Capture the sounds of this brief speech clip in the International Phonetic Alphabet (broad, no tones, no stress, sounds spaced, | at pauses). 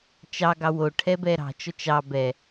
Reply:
t͡ʃ ɑ ɡ ɑ w o ʈʰ ɛ b ɛ ɾ ɑ̤ t͡ʃ ɔ t͡ʃ ɑ b ɛ